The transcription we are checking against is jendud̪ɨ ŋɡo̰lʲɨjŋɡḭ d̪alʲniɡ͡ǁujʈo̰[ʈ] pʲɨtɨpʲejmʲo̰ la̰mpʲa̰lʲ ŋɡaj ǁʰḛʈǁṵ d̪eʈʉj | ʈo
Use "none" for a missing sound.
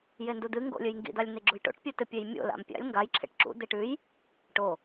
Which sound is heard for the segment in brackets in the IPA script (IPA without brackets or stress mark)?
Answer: ʈ